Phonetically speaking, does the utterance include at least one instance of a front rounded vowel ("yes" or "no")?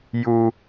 no